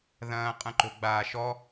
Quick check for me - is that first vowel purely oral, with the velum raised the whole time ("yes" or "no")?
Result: no